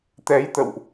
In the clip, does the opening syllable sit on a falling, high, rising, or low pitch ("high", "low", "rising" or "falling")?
rising